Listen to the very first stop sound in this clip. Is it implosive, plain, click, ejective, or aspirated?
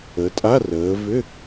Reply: ejective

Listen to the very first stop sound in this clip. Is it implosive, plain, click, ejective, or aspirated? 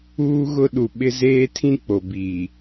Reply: implosive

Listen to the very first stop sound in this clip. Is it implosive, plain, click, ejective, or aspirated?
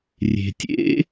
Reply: plain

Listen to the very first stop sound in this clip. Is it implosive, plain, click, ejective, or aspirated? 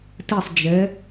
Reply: plain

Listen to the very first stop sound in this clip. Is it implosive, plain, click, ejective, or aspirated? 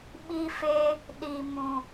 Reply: implosive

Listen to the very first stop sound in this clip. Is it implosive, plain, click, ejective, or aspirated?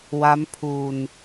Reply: aspirated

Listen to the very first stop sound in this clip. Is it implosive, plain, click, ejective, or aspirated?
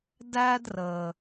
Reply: plain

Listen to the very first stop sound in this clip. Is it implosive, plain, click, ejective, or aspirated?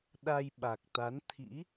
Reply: implosive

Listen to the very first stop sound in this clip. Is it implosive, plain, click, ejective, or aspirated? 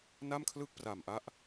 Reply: aspirated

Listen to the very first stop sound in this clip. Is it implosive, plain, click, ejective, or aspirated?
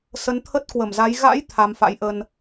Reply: aspirated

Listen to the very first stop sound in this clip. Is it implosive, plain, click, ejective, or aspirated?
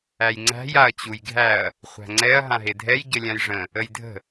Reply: click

